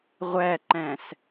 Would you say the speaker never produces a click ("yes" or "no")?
no